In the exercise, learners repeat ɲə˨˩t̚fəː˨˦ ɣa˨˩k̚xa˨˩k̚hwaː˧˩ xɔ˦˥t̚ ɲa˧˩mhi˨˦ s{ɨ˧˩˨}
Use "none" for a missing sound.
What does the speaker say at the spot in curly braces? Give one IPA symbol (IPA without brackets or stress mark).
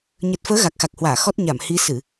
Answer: ɨ˧˩˨